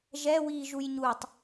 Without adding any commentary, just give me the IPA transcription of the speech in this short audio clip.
ʒɛ wiːʒujɲutˤ

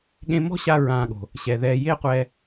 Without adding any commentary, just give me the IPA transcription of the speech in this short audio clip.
ɠẽ˧mɔ̤˦ɕa˧ ɹãː˧ɠo̤˨ | ɕɛ˨ðɛː˧ je˦qʷɛ˧

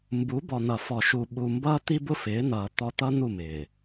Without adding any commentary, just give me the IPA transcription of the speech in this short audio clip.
mbu˨˦bɔ˨ n̪ʌ˨fɔ˨ʃu˨ ɓu˨mbʌ˦ t̪i˦bʊ˦fɪː˨˦n̪ʌː˨ t̪ɔ˦ t̪ʌ˦n̪u˦˨ mɪː˨

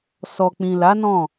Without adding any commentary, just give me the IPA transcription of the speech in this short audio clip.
sɔ˨k͡pĩ˨la˨˦ nɔ̃˦˨

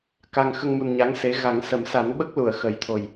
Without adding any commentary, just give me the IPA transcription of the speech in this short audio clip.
ka˨˩ŋ xə˧ŋmu˨˩n ɲa˧˥ŋse˧˥ ɣa˨˩˦ŋsə˨˩˦m sa˨˩˦nɓə˦˥k̚lu˨˩˨ə̯ xə˨˩˦jt̪ʰo˨˩j

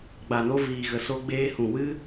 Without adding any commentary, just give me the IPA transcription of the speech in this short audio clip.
ɡ͡ba˨no˧viː˨ ɣə˨so˧ɡ͡beː˧ hũ˨wɨ˦

